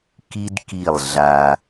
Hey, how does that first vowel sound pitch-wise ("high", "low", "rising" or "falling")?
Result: high